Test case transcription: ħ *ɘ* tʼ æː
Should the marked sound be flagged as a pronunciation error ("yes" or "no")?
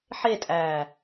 yes